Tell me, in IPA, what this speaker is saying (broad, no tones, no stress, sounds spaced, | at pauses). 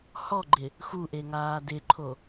h ɔ ɡ͡ǃ ɪ | x u ʔ e ŋ aː d ɪ ǃʰ o